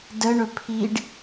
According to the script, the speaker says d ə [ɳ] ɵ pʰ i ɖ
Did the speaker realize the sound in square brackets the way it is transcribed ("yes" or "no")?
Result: yes